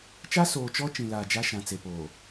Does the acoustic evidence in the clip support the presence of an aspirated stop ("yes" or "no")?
no